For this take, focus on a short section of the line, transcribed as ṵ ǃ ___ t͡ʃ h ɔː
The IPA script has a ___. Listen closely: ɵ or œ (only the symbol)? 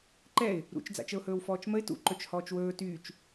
ɵ